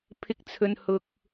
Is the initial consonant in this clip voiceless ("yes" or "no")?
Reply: yes